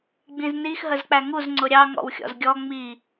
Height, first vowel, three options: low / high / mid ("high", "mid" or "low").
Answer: high